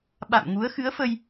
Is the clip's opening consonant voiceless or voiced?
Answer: voiced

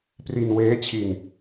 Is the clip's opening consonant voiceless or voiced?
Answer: voiceless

